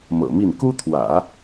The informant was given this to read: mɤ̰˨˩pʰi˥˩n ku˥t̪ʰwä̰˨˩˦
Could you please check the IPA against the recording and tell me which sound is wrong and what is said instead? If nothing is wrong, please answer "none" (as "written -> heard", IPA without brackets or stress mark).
pʰ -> m